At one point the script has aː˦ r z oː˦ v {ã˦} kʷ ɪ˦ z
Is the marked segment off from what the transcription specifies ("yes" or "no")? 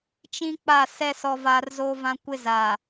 no